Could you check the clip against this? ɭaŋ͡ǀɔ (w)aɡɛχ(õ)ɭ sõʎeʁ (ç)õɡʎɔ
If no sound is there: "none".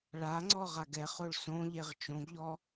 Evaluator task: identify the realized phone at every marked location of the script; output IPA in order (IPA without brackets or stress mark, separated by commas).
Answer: ʁ, o, t͡ʃ